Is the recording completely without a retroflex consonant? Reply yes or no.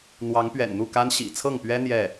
yes